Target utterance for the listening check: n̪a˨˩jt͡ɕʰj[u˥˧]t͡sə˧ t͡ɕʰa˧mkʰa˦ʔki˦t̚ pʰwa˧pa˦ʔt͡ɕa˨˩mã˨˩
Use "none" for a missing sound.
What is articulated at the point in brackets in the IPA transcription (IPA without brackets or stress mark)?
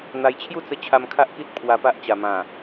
u˥˧